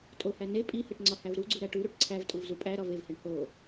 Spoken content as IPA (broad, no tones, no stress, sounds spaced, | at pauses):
tʼ o h æ n e pʼ i h e ʈ ŋ͡ǀ ɒ h æ v ɾ u ɡ͡ǀ u ɾ æ ʈ u ɾ u ʈ ǀʰ æ v tʼ u v z u pʼ æ ɾ ɒ v e v h e ɳ h o